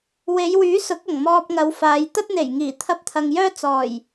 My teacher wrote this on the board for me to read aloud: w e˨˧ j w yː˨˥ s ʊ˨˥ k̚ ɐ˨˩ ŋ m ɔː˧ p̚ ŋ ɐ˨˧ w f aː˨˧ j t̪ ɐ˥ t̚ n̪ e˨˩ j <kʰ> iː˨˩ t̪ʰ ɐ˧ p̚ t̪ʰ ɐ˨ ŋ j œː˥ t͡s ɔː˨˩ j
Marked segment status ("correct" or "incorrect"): incorrect